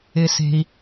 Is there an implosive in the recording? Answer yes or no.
no